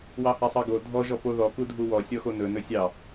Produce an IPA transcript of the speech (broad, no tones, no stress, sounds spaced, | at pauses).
w ɑ h a sˤ ɑ ɡ o dʱ ɔ ʒ ɔ p o ð ɔ k u dʱ u w ɔ sʲ ɔ x o n ɵ n ɵ sʲ ɑ